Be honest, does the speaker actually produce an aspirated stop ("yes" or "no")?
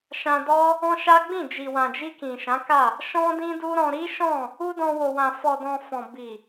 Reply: no